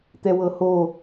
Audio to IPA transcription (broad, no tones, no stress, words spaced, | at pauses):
t̪ɛwɤho